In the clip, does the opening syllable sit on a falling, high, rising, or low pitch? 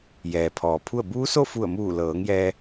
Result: low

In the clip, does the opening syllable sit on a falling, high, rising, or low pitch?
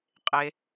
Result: low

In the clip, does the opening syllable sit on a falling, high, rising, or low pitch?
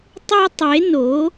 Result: high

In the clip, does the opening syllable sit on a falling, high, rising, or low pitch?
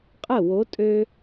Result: falling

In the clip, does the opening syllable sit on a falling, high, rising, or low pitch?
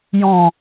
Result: low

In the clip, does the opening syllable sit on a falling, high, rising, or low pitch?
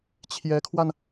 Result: rising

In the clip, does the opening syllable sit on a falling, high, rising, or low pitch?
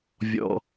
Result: high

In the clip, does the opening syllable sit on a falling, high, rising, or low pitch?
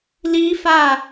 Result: high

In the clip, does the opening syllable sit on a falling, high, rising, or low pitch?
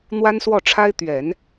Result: high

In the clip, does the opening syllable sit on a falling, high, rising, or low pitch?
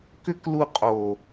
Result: high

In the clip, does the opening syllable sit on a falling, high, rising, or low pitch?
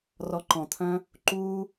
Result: low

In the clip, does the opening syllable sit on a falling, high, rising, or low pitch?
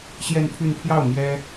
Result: falling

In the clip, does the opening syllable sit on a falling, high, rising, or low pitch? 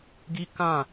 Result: high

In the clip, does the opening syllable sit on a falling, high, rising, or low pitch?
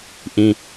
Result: high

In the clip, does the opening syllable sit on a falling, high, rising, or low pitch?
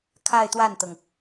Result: falling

